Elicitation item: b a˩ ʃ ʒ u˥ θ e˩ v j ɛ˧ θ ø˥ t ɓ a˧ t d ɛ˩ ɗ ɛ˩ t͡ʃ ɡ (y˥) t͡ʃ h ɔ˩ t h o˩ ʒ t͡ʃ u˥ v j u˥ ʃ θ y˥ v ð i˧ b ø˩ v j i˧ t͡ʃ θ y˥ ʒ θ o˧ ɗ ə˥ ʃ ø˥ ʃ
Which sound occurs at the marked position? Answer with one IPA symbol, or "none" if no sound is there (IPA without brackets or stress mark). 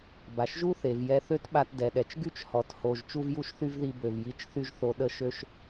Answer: y˥